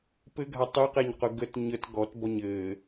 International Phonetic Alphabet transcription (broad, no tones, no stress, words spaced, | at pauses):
pɘɡʱa tˤɨqeɲqʊ ɡət ɲət ɡɔt bɔɲɘː